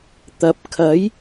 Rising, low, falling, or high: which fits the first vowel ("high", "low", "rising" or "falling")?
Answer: rising